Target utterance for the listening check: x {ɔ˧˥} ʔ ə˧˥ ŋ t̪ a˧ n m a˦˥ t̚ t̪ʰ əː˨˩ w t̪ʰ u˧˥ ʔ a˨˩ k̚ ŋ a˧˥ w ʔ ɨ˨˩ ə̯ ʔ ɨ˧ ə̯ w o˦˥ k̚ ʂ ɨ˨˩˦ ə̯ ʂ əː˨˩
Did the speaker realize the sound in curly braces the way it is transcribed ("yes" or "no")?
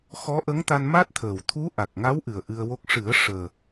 yes